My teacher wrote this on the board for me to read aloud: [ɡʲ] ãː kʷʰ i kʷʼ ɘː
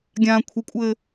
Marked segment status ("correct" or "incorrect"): correct